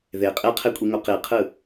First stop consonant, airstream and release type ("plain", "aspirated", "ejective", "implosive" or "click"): ejective